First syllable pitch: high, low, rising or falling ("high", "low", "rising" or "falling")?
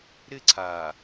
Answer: falling